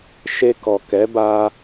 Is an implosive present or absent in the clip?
absent